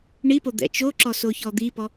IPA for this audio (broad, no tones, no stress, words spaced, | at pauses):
ɳipod̪ɛ̰ t͡ʃoǁɔsoçɔ d̪ipɔ